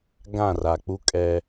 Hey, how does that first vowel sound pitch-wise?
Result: falling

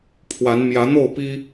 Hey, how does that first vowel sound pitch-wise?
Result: rising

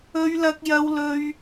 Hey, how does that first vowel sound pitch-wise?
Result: high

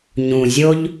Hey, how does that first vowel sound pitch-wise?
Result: low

